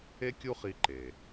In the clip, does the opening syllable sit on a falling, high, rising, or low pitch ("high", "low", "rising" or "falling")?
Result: high